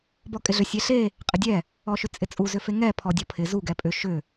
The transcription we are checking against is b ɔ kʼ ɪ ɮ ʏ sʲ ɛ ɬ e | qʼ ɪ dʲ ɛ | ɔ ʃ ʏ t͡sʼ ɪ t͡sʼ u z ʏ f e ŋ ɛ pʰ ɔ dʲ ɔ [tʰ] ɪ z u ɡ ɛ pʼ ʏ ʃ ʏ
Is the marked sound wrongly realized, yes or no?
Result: yes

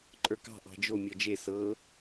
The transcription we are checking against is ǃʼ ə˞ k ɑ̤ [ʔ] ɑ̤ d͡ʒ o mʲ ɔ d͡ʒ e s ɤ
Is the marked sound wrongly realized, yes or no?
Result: no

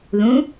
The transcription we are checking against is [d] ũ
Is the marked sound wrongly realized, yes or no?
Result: yes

